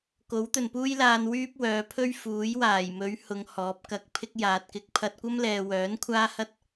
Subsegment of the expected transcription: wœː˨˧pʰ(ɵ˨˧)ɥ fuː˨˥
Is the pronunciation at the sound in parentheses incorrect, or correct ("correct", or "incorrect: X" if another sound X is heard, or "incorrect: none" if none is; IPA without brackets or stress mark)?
incorrect: ɵ˥